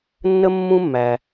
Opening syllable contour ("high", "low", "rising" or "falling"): high